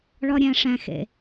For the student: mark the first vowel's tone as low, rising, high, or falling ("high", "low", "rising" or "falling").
high